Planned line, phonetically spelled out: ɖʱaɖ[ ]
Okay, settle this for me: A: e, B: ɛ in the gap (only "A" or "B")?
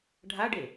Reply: A